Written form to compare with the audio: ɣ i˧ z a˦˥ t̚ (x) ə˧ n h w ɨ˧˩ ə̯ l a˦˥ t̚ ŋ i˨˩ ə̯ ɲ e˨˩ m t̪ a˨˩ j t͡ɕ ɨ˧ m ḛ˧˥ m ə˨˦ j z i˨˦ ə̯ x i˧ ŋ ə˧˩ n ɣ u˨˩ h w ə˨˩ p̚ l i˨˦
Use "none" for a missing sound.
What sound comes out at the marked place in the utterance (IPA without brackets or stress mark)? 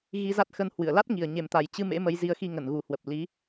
x